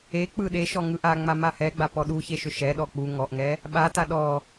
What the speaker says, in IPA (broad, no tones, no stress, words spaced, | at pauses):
ek͡pɯ ɗeʃɔ ŋɯʔaŋ͡ma mahɛɡ͡ba pɔɗuçe ʃʏʃɛɗɔ k͡pu ŋɔʔŋɛ | ɓata ɗɔ